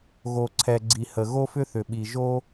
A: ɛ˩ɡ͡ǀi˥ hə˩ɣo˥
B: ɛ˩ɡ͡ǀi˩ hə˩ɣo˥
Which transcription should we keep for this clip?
B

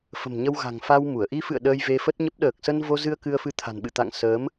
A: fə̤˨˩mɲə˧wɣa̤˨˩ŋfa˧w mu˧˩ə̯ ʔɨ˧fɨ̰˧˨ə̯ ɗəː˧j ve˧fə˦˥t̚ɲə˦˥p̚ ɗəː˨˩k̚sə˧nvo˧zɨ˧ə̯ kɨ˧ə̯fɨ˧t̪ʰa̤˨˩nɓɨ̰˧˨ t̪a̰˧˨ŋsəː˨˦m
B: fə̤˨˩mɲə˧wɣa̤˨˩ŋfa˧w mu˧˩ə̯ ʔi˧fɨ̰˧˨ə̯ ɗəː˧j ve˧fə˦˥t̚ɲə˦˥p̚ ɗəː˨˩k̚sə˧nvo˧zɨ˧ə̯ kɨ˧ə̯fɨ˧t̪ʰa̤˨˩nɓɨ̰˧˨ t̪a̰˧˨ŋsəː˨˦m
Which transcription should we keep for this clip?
B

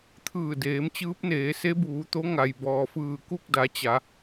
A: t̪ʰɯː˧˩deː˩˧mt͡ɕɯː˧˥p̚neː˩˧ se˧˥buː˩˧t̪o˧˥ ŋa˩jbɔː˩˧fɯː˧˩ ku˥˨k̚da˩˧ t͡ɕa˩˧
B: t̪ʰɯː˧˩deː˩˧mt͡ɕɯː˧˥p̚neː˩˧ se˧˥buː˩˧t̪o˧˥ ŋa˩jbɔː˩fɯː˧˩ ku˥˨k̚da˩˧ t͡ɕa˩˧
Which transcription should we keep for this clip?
B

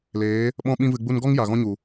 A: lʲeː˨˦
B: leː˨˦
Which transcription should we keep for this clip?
B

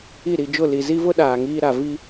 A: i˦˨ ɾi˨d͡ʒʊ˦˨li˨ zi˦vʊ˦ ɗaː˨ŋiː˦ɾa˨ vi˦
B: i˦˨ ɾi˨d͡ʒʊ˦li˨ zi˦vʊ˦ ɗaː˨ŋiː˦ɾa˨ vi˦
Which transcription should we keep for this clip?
A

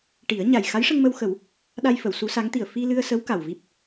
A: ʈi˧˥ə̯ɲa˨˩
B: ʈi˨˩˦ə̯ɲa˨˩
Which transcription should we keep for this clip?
B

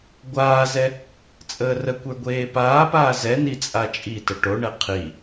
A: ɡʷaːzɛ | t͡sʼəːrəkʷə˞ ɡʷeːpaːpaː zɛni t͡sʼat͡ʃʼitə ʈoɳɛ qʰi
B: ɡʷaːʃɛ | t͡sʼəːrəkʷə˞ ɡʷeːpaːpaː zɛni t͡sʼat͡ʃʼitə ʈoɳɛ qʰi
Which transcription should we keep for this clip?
A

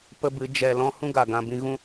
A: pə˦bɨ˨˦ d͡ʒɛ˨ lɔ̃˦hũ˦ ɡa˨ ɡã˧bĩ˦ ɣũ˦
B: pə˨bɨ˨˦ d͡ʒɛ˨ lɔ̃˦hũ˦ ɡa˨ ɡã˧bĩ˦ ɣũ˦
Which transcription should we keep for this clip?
A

